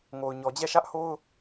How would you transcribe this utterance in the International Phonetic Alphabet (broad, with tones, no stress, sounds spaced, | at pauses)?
ŋ o˨ ʊ̯ ɲ ɔ˨ d͡ʑ ɛ˦˨ ʃ ä˦ ʔ h o˦ ʊ̯